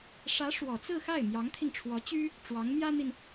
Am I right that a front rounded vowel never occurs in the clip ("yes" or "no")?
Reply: no